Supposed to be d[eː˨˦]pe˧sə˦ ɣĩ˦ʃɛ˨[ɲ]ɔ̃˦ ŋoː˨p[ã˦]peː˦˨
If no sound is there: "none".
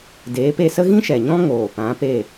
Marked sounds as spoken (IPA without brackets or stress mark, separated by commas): eː˨˦, ɲ, ã˨˦